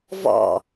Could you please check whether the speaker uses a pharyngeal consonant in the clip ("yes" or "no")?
no